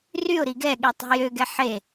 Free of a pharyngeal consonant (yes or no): no